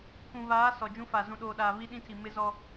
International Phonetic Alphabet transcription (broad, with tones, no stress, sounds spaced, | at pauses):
pʰ ũ˨ β aː˨˦ s ɔ˨ d͡ʒ ũ˦ f a˨ z ũ˨ ɗ oː˨ ɗ aː˨ β i˦ ɗ ĩ˦ tʰ i˨ m ɪ˦ z ɔ˦